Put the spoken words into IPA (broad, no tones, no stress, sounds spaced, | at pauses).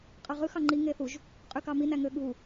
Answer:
qʼ ɑ ʁ ɯ x ɑ ŋ͡ǃ i ŋ e θ u ʒ | qʼ y k ɑ m i n æ ŋ ø ɠ u